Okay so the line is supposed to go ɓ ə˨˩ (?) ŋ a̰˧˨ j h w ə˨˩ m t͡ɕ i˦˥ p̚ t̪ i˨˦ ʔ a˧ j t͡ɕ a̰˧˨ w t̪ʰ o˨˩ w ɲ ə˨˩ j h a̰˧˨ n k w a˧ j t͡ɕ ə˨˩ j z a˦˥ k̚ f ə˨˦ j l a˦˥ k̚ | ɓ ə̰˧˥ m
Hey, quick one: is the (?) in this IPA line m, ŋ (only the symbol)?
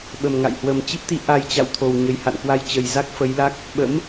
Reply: m